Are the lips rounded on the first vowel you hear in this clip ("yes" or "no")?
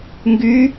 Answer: yes